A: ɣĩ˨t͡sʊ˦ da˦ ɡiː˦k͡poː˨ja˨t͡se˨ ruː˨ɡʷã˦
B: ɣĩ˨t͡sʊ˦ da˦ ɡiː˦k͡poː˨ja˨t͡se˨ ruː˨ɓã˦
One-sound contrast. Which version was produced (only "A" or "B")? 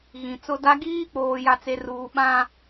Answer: B